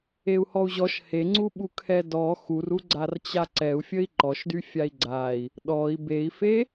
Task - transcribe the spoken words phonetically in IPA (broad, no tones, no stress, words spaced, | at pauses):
eu̯hɔu̯ʑɔʃ heŋ͡ǀuɓukʰɛ dɔ xuru ɡ͡ǀart͡ɕaǀɛu̯ fʲəi̯ǃɔʃdy fʲai̯ɡ͡ǀai̯ | ɗɔi̯ bei̯fe